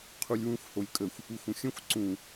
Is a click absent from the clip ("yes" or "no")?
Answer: no